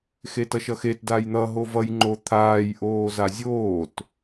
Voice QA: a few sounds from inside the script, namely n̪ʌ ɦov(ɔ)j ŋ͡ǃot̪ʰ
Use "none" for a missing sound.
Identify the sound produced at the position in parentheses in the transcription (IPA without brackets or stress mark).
ʌ